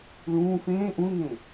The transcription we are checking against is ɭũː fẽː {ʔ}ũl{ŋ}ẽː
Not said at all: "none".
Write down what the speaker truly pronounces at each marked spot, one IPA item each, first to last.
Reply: ʔ, ŋ

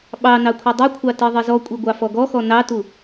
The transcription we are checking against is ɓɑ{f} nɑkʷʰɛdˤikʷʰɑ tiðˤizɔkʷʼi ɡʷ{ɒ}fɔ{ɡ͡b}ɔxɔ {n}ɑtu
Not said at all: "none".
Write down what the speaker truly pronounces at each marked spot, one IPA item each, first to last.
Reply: none, ɑ, ɡ, n

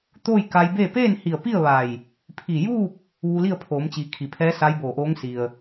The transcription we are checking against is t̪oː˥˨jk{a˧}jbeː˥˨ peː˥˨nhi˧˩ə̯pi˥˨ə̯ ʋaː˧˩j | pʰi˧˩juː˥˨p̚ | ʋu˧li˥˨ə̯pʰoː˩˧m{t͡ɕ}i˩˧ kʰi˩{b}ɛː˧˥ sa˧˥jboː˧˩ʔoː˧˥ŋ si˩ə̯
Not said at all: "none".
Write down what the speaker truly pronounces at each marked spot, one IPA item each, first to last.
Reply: a˧, t͡ɕ, pʰ

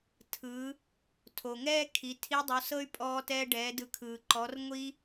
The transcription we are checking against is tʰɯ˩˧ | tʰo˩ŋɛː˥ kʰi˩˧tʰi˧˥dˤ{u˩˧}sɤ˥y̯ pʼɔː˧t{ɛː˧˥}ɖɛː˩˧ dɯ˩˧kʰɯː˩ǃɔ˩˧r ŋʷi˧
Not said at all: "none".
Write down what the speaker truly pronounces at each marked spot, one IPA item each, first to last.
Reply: u˩˧, ɛː˧

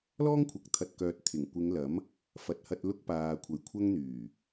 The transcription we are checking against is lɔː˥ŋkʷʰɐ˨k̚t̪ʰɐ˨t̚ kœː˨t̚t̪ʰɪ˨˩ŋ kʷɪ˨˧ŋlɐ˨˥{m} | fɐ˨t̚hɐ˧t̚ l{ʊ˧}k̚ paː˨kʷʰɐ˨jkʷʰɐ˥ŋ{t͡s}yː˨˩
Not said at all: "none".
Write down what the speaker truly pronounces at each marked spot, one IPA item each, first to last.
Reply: m, ʊ˧, n̪

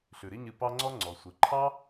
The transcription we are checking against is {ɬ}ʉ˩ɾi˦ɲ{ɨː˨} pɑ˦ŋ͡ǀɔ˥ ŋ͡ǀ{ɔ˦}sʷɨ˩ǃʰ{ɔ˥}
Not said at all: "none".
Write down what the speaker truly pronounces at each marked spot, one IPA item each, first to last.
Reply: ɬ, ɨ˨, ɔ˩, ɑ˥

